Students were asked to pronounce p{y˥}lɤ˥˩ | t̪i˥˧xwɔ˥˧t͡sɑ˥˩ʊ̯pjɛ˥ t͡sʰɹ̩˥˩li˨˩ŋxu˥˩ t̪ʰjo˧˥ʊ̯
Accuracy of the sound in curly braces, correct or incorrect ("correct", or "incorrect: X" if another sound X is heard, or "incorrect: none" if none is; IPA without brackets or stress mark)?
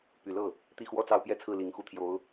incorrect: y˨˩